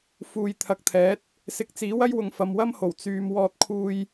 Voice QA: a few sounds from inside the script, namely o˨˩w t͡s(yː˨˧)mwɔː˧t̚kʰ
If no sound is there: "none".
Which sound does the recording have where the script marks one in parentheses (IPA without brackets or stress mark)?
yː˨